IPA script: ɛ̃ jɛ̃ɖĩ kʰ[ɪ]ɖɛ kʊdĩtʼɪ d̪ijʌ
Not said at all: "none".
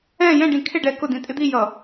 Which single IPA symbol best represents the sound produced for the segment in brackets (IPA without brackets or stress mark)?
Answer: ɪ